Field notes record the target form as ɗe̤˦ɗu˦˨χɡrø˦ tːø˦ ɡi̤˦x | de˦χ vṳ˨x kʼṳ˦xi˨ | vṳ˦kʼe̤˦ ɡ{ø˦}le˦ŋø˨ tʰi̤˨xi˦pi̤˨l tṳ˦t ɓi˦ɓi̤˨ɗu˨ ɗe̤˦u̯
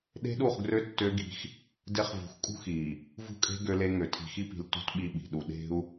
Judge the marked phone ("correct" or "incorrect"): correct